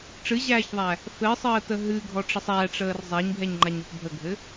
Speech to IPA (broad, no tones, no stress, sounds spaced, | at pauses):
ʈ͡ʂ ɨ ʑ æː ç ðˤ æ | f ɘ sˤ əː t ə ɦ ɨ ɡʱ ɔ ʈ͡ʂ ə sˤ æ ʈ͡ʂ əː r zˤ æ ɲ bʱ ɛ ɲ ŋ͡ǃ a ɲ o p bʱ ə ɡʱ ɘ